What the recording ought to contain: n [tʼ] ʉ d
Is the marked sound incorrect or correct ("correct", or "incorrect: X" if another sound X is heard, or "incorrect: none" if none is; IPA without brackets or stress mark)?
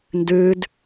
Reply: incorrect: d